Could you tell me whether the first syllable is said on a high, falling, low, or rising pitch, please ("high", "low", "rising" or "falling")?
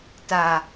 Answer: low